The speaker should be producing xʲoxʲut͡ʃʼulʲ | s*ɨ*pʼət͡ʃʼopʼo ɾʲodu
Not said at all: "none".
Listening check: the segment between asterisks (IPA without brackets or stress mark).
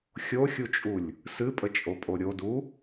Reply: ɨ